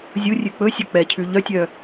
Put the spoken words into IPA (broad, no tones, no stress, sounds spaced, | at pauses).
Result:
zʲ u rʲ ʉ k͡p ɵ sʲ ɵ k͡p ɛ cʰ ʉ ʎ œ tʲ œ